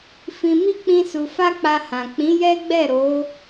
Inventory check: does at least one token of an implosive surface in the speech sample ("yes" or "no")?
no